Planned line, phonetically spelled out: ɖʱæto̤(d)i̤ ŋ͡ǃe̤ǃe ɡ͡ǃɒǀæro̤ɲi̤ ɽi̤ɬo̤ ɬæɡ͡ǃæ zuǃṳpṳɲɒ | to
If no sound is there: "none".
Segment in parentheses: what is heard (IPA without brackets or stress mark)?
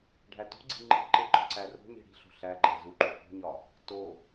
ɡ͡ǀ